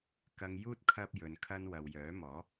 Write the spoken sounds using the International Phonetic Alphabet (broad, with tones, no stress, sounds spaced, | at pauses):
k ɐ˧ ŋ j uː˥ t̚ kʰ ɐ˥ p̚ j ɵ˨ n kʰ ɐ˥ n w ɐ˨ w j œː˨˥ m ɔː˨˥